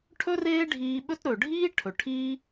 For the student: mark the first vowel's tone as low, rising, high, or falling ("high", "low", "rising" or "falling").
high